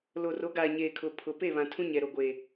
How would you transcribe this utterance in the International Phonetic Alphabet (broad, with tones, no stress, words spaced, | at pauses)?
loː˨ro˨˦ɡaː˨ ɲeː˨kʰʊ˨ pʰʊ˨ pe˦˨βã˨ tʰũ˦ɲɛ˨ɾo˨ ɡʷeː˨